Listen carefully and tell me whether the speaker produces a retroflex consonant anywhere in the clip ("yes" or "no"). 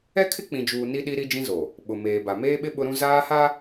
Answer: no